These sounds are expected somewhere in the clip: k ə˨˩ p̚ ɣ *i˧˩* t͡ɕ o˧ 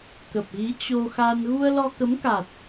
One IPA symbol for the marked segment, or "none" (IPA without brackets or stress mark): i˨˦